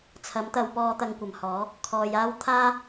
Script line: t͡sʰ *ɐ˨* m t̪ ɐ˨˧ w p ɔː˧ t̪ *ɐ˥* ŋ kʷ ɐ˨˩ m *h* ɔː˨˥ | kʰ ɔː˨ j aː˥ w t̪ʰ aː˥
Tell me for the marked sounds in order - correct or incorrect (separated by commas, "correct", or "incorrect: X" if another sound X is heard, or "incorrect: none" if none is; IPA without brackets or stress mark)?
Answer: incorrect: ɐ˨˥, incorrect: ɐ˧, correct